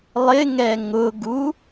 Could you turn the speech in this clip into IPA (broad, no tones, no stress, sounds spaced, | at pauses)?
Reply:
lˠ ɪ ŋ ɛ ŋ ʊ ɡ u